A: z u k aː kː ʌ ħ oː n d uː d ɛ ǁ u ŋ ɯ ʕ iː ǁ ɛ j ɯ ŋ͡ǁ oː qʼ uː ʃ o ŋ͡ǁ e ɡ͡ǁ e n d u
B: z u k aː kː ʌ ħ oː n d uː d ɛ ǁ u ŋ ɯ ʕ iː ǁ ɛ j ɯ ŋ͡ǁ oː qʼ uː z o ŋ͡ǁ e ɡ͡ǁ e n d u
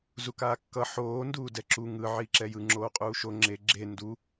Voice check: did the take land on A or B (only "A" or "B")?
A